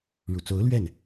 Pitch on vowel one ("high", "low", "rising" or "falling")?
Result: low